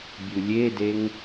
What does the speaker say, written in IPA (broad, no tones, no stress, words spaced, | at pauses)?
bʲulʲedeŋ